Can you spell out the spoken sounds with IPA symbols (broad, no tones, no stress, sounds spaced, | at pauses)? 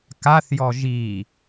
k a θ j ɔ ʒ i